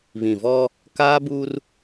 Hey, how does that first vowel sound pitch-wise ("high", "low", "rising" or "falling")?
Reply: low